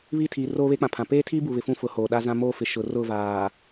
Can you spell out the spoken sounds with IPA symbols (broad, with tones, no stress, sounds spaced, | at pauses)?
β i˦˨ tʰ iː˨ r oː˦ β e˦ k͡p ã˨ pʰ ã˨ p eː˦ tʰ iː˦ b u˨ β ɪ˨ f ũ˦ f ʊ˨˦ h oː˨ ɗ a˦ z ã˦ m oː˦ f ɪ˨ ʃ ʊ˨ r ʊ˦˨ v aː˨